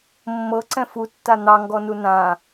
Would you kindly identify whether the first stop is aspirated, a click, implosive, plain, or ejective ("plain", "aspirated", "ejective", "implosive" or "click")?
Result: click